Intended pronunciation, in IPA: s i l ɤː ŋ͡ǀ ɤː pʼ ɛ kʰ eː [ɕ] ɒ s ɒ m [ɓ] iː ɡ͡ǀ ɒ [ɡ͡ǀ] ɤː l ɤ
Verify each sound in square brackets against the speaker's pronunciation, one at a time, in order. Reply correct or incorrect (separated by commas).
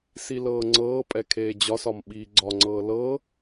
incorrect, correct, incorrect